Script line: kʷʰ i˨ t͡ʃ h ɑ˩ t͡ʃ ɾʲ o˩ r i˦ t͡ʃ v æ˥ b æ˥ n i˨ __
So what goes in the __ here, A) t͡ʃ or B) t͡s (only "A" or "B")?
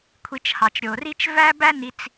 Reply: B